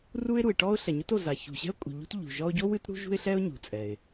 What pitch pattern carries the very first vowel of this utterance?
high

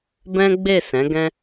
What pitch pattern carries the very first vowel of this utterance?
high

